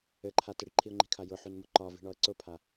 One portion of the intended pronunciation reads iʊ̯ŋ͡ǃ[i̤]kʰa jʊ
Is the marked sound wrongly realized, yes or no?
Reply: no